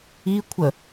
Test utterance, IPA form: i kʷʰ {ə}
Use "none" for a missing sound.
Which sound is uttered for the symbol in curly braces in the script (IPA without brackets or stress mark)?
ə